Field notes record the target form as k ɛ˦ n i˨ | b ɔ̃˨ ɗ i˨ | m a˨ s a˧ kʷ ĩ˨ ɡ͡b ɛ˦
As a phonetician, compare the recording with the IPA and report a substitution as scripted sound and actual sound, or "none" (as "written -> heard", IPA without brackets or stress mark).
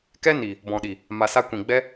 none